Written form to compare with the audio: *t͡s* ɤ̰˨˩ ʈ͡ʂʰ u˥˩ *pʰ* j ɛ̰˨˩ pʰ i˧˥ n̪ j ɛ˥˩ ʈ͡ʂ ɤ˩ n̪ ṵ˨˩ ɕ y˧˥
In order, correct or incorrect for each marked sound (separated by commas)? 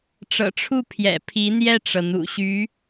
incorrect, correct